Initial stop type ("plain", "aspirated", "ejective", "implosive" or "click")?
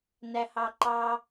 click